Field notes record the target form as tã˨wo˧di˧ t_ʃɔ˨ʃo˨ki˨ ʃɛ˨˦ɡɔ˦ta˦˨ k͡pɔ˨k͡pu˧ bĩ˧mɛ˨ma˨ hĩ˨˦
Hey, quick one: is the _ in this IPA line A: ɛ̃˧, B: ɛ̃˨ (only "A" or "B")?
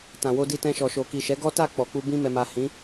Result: A